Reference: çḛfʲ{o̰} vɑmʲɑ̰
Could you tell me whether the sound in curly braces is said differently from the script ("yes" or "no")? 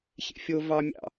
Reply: yes